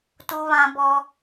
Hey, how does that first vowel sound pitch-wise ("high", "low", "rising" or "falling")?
high